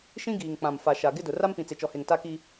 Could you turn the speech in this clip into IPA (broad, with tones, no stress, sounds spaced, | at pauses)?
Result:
ʃ ĩ˦ ɡ iː˨ ŋ k͡p ã˨ m f a˨ ʃ a˨ ɡ ɪ˦ d ʊ˨ r a˦ m p ĩ˨ t͡s e˨ t͡ʃ ɔ˨ h e˨ ŋ t a˦ k i˦